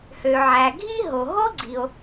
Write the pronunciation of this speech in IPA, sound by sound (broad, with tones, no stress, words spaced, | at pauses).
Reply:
hø˩ʕæ˩ɡʱi˥ ɦo˩ɦo˥ɡ͡ǀi˩o̯